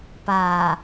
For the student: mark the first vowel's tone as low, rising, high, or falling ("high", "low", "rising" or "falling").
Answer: low